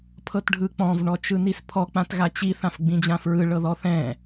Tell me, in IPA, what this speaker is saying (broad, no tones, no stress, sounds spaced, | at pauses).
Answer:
pʰ ɤ t ɖʱ ɯ k͡p ɔ̃ v ɳ ɔ t͡ʃ ɯ n i s pʰ ɔ k͡p ã t ɣ a t͡ɕ i θ ã f ɡ͡b ĩ d͡ʑ ã f ɹ ɯ ɭ ɤ ð ɔ θ ɛ̃